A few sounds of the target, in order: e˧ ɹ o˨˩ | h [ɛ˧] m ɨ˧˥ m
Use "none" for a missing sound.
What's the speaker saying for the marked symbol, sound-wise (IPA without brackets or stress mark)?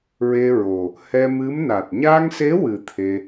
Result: ɛ˧